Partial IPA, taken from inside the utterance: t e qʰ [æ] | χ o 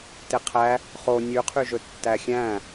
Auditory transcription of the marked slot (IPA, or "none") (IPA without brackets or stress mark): æ